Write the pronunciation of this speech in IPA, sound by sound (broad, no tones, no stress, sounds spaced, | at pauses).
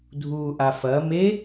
dʱ uː ʔ a f ɐ m e